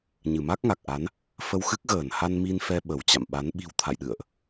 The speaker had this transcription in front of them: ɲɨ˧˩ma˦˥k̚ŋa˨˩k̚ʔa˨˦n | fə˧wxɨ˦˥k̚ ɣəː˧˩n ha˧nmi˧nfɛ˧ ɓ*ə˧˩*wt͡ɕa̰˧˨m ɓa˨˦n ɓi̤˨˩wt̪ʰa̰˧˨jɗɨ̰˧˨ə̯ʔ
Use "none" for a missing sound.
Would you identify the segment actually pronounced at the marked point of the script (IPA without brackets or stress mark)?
ə˧˩